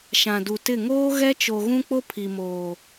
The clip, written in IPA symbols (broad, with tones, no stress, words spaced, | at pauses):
ʃã˨du˨tɪ˦˨ ŋoː˦ ɣɛ˦t͡ʃo˨ɣũ˦k͡po˦ pʰi˨moː˨